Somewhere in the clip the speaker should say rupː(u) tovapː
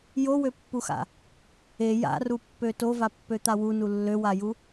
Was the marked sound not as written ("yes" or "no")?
yes